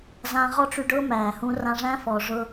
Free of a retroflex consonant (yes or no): no